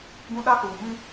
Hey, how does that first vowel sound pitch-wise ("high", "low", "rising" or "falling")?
high